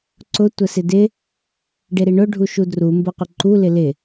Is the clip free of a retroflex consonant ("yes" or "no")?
no